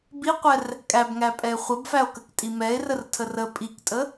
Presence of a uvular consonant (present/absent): present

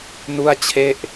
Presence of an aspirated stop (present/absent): present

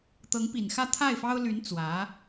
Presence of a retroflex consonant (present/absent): absent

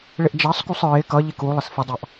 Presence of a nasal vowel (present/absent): absent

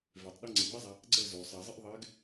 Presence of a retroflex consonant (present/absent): absent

